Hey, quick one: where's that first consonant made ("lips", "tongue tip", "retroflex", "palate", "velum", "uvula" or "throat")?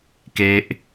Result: velum